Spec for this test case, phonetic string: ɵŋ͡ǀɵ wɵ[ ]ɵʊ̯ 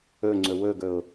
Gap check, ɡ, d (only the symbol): ɡ